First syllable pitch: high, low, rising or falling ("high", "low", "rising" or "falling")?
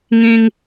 high